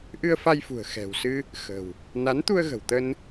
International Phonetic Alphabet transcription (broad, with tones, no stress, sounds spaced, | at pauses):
ʔ ɨ˧ ə̯ f a˧ j f ṳ˨˩ ə̯ x ɛ̤˨˩ w s ɨ˧ | x ə̤˨˩ w | n a˨˦ n t̪ u˧ ə̯ ɣ ə̤˨˩ w t̪ ə˧ n